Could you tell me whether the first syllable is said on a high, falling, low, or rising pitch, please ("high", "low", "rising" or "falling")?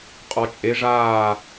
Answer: low